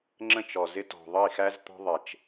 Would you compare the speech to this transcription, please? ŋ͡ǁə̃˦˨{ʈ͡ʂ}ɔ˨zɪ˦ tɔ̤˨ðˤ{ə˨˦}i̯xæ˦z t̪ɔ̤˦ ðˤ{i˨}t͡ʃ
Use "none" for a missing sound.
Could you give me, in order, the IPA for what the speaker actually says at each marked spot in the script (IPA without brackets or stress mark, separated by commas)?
t͡ʃ, ə˦˨, ɪ˨